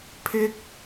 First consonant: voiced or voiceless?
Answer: voiceless